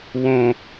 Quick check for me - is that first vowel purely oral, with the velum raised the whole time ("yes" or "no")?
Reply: no